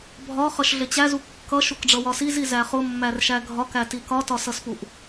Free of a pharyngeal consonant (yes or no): yes